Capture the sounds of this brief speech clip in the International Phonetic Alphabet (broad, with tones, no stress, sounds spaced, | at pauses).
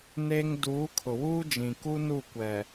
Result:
n e˦ ŋ d uː˨˦ kʰ ʊ˨ w uː˦ d͡ʒ ĩ˨ k u˦ n u˦˨ kʷ ɛ˨